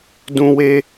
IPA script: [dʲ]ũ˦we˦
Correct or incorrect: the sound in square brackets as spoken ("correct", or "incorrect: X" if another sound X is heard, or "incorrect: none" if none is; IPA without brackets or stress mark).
incorrect: d